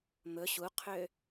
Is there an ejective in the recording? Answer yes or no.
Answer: no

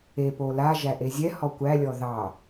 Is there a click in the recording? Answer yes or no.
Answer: no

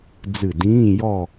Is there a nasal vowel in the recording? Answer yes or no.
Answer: yes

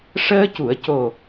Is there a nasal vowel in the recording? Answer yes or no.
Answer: no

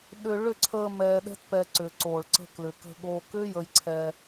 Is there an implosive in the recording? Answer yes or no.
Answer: yes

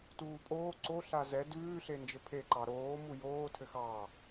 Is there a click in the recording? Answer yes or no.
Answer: yes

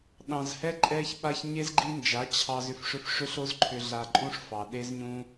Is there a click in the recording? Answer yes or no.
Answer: yes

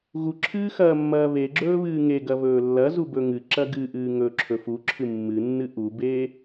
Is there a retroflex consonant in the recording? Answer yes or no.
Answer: no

